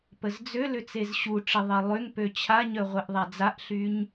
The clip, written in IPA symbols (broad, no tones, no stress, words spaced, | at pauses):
pəzd͡zølʏ t͡sezɕuʈ͡ʂɪ ðˤɛlˠøŋpø t͡ɕʰaɲœ ʁʷɛʔðˤad͡zaʔɬyɲ